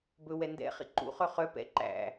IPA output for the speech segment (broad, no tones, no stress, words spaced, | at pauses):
bɵwɛ ndɛ̰ χḭǃṵχœ χœ pɛ̰ ǃæ̰